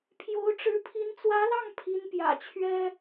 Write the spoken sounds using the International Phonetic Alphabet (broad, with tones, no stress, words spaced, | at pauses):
pʰjo˧˥ʊ̯ʈ͡ʂɻ̩˧˥pʰi˧˥n t͡swä˧˥lɑ˥˩ŋ pʰi˧˥npjä̰˨˩t͡ɕʰɥɛ˥